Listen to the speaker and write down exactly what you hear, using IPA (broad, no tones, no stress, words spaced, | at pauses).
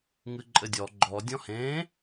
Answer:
ŋɨǃʼɘdʲɔ ɡ͡ǃɔ dʲɔ̃hẽ